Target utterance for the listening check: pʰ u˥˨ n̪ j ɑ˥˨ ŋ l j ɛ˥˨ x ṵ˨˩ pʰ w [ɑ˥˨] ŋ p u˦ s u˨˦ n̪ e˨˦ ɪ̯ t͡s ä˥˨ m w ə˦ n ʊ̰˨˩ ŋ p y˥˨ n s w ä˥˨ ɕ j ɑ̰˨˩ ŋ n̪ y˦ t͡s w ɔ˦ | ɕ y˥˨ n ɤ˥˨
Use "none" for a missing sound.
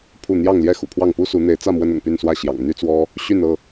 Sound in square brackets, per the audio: ɑ˥˨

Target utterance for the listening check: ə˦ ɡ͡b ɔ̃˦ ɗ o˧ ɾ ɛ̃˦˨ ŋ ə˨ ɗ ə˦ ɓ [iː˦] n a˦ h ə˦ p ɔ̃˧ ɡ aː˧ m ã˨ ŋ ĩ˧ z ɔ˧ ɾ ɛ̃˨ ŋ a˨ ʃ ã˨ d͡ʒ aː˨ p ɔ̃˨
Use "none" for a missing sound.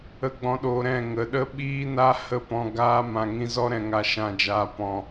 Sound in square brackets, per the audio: iː˦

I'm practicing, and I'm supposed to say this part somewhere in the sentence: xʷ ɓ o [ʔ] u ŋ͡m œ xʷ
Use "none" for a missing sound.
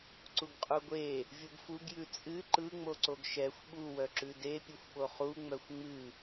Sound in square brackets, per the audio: χ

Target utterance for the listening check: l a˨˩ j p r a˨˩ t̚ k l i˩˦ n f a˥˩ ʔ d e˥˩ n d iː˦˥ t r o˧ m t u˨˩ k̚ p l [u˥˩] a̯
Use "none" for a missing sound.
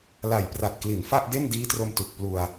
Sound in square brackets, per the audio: u˧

